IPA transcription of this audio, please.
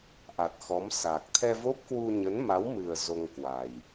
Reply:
ʔ a˨˩ t̚ x ɔ˨˦ m s a˨˩ k̚ t̪ʰ ɛ˧ v o˦˥ p̚ k w u˧ ɲ ə˨˦ n m a˨˦ w m ɨ˨˩ ə̯ z o˧ ŋ k w a˨˩ j

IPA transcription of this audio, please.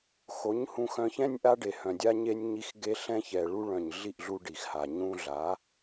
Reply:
x o˨˦ ɲ h ũ˧ x œ̃˧ ç ɛ̃˦ nʲ ʔ a˧ ɖ e˨ h œ̃˨ dʲ a˧ ɲ e˧ nʲ ɲ i˧ x ɡ e˧ ɬ ɛ̃˧ ç ɛ˨ ɭ u˧ ɭ œ̃˨ ɲ ɮ i˦˨ ʔ ɮ u˧ ɖ i˨ x h a˨ ɲ ũ˧ ɮ a˨˦

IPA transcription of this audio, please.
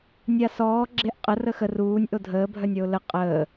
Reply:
nʲ a s ɔː ɡ͡ǁ e ʔ qʼ ə r ə x ə r uː nʲ ʔ o dʱ əː bʱ œ nʲ ɔ ʊ̯ l ə qʼ əː

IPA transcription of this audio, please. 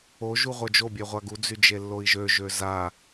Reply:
o ʒ u ʁʷ œ d͡ʒ o bʲ œ ʁʷ a ɡ u d͡z y d͡ʒ e lː o i̯ ʒ ø ʒ ø z a

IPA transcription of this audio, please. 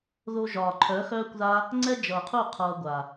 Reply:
ð o˧ ʒ ɒː˨ ǃʰ œ˨˦ x œː˧ kʷ ð a˧ | ŋ͡ǀ ɛ˦ d͡ʒ ʌː˨ qʰ u˦˨ qʰ ʌː˧ ɡʷ a˨

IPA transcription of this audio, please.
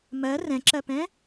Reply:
m ɜ r ɛ̃ ǁ ɜ p ɛ̃

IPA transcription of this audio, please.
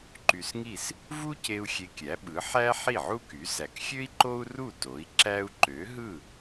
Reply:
ǃ y˧ s ŋ i˥˩ s | v u˥ c e˧ u̯ xʲ e˧ kʲ æ˩˥ ɓ ɯ˩˥ ħ æ˥ ħ i˥˩ ʕ u˥ k y˩˥ s æ˩ k xʲ ø˥ i̯ ǃ o˥ u̯ r u˥˩ t o˩˥ i̯ ǁ æ˥ u̯ ǃ ø˩˥ ɦ ɯ˥˩

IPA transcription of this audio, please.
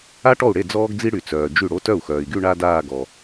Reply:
a˥ ʈ ɔ˥˩ u̯ ɽ e˥˩ d͡z ɔː˥ ɡ d͡z i˥ ɽ y˨ t͡s œː˨ d͡ʒ y˥˩ ɽ o˥ t œ˥˩ u̯ x œː˨ i̯ ɡ y˥˧ ɳ a˥ d aː˥˧ ɡ ɔ˨

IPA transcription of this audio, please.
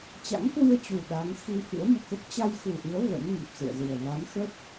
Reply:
t͡ɕ a̰˧˥ ŋ k w ɨ˧ ə̯ t͡ɕ u˨˩ ɗ a˨˦ ŋ x i˧ f ɨ̰˧˥ ə̯ m ṵ˧˨ k ə˦˥ p̚ t͡ɕ a˧ j x u˨˩ ʔ ɨ˨˦ ə̯ v ə̰˧˥ n ŋ i˨˩ p̚ s ɨ̰˧˨ ə̯ z ɨ˨˩ ə̯ v a˨˦ n x ə˦˥ t̚

